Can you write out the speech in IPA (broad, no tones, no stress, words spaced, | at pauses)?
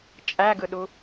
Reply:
t͡ʃʼæɡɯɗu